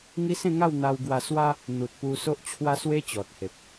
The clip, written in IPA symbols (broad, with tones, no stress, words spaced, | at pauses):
ŋi˦sẽ˥˧ŋa˥˧wn̪a˧w ɡwa˧swa˦ | n̪u˨t̚pu˧ so˦ʔt͡ɕʰwa˦swe˦ t͡ɕɔ˨t̚he˨p̚